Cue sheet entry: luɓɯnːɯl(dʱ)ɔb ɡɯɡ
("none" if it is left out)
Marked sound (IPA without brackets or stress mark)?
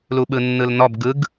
n